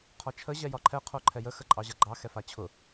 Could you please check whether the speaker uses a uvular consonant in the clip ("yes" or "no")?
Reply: yes